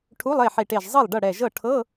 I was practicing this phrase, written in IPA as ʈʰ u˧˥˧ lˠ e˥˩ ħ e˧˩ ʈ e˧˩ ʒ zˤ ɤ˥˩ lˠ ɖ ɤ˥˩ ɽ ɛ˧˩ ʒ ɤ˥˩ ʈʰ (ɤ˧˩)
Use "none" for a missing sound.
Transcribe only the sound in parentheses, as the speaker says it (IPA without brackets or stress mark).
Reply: ɤ˧˥˧